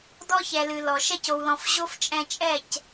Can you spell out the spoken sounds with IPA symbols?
d ɔ˦ ç ɛ˨ l ɨ˨ l ɔ˨ ʃ ɛ˧ c o˨ w l ɔ̃˨ f ʑ o˦ f t͡ʃʼ ɛ̃˧ t͡ʃʼ ɛ˦˨ c

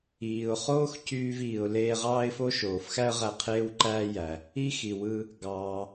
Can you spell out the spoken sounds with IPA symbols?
iː˩ ʊ̯ χ oː˥ x c yː˧ v iː˩ ʊ̯ l eː˧ ʁ ɑː˥ ɪ̯ f o˥ ʃ oː˩ f x æ˥ ə̯ ʁ æ˧ qʰ eː˥ w ǃ æː˥ j æ˩ | i˥ x i˩ w ɯ˧ | ɡ ɑː˩

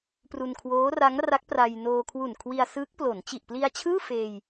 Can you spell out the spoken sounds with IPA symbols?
p r u˧ n kʰ w oː˦˥ r a˦˥ ŋ r a˦˥ k̚ p r a˧ j n oː˧ kʰ w u˨˩ n kʰ w i˧ a̯ s ɯː˦˥ k̚ p l o˩˦ n t͡ɕ i˨˩ ʔ p l i˧ a̯ t͡ɕʰ ɯː˥˩ f eː˧ j

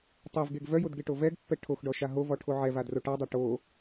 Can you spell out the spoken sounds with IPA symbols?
tˤ e v ɡ e ɡ v œ j o d ɡ e ʈ o v ɛ ɡ pː ɛ ʈʰ o x ɖ ɔ ʃ a ɦ o v ɔ ʈʰ o ʕ ɛ v a d r o ʈ a dˤ a ʈ o

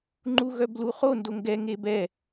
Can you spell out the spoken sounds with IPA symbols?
ŋ͡ǃ u ɣ œ b l u χ o n d o ŋ ɡ ɛ ŋ e b ɛ

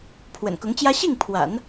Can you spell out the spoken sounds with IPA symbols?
pʰ w ə̰˨˩ n k ʊ˧˥ ŋ t͡ɕ j ä˥ ɕ i˥˩ ŋ pʰ w a̰˨˩˦ n

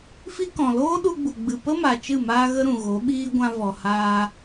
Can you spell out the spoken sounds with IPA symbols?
f i˦ k ɔ̃˨ l oː˦ ɗ u˧ ɡ͡b u˨ ɡ͡b ɨ˨ p ə˦ m a˨ t͡ʃ ɨ˦˨ m aː˦ ɣ ə˦ ɾ ũ˨ ɣ o˨˦ ɓ iː˦ ɡʷ ã˧ v ɔ˨ h aː˧

